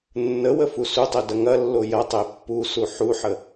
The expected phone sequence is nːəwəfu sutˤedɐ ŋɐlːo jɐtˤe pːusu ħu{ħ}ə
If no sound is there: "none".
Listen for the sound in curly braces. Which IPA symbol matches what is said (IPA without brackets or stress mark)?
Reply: ħ